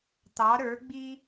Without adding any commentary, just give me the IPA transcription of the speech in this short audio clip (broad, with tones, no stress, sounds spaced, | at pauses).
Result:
t̪ ɑ˩˥ ɾ ə˞˩˥ ɡ͡b i˥